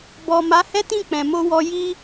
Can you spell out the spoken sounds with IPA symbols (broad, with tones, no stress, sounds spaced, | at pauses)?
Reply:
b ɔ˨ m a˨˦ h ɛ˦ t ĩ˦˨ k͡p ɛ̃˨ m o˧ w ɔ˧ j i˧